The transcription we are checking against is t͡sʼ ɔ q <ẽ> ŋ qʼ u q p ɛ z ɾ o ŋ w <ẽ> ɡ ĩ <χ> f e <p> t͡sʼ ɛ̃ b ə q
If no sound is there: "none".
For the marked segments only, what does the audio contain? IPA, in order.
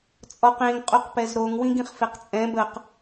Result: ẽ, ĩ, χ, q

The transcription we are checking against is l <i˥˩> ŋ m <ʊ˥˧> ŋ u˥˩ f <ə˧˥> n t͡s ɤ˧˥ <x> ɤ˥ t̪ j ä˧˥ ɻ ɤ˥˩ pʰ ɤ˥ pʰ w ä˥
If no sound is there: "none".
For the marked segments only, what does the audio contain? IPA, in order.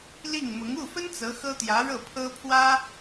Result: i˥˩, ʊ˧˥, ə˥, x

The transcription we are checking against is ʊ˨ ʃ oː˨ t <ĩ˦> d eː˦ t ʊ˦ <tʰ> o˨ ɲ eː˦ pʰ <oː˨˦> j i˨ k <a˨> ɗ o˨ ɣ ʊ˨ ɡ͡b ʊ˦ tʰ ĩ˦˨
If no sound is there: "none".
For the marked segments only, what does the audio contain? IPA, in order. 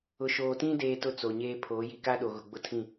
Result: ĩ˦, t͡s, oː˨˦, a˦

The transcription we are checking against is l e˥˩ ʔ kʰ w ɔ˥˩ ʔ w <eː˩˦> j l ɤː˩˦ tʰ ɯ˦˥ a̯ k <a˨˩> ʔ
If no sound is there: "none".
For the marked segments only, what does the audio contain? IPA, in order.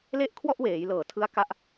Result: eː˩˦, a˦˥

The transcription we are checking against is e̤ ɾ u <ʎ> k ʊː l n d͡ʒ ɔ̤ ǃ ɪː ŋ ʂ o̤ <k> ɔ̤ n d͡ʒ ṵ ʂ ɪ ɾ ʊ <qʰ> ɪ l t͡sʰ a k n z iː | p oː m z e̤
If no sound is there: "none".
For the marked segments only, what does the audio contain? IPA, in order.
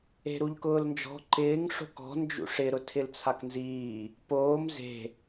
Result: ʎ, k, tʰ

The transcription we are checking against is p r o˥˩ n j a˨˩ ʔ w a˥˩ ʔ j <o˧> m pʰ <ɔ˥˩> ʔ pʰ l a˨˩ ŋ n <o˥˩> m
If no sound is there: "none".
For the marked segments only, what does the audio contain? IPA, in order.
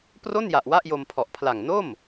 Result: o˧, ɔ˨˩, o˥˩

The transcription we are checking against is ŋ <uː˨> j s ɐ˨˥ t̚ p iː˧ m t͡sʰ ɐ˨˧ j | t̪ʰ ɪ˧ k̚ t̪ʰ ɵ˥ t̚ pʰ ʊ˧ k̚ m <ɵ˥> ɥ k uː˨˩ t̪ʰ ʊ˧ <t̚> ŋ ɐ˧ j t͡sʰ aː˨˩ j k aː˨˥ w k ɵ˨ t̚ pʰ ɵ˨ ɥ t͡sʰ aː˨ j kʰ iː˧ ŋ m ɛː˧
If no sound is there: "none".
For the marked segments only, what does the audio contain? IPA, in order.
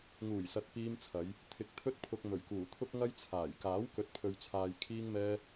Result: uː˨˩, ɵ˨˩, k̚

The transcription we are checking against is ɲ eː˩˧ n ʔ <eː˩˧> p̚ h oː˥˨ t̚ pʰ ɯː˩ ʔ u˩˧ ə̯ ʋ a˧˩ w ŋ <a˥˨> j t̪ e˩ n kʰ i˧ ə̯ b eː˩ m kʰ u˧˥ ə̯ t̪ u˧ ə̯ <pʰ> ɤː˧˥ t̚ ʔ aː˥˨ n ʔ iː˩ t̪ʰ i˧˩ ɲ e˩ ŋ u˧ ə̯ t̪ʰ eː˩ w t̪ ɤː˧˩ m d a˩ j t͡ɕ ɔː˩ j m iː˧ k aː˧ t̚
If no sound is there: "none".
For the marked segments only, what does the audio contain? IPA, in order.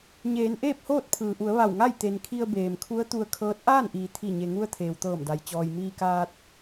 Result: eː˥˨, a˥˨, kʰ

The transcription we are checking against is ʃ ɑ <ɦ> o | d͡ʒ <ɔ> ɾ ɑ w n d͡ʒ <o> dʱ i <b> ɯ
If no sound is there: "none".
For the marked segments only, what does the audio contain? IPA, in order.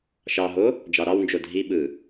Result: ɦ, ɑ, o, ɓ

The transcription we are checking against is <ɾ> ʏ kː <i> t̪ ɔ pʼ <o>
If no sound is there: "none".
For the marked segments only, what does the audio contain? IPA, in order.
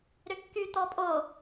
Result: ɾ, y, o

